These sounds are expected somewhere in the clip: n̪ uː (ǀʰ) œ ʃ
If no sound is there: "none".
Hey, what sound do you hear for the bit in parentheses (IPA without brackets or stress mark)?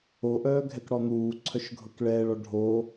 ǀʰ